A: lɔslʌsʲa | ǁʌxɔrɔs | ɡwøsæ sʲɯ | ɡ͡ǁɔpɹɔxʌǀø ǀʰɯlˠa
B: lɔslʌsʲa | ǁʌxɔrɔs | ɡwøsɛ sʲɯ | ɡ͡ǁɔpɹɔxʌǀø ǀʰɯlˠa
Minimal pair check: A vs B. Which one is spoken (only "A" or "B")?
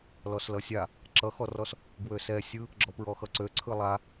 B